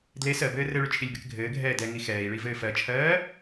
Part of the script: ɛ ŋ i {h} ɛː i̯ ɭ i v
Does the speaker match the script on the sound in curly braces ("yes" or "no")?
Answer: no